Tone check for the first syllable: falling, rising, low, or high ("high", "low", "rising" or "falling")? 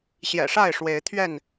low